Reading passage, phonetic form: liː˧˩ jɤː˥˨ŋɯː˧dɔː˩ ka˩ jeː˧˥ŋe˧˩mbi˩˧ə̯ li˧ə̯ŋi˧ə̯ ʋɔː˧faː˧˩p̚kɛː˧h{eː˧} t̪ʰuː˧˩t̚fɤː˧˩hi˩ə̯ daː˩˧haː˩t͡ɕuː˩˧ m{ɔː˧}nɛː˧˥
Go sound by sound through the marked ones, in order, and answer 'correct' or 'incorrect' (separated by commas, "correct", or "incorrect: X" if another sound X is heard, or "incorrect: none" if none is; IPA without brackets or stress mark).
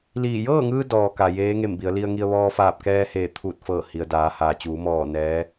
incorrect: eː˧˩, incorrect: ɔː˧˩